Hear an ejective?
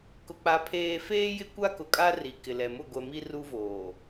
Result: yes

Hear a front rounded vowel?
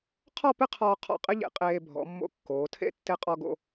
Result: no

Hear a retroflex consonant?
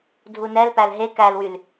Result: no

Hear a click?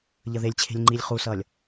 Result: yes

